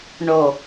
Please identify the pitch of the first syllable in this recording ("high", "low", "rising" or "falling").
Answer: low